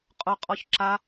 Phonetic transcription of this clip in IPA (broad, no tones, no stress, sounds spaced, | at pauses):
qʼ ʊ qʼ ɔ ç ǁ a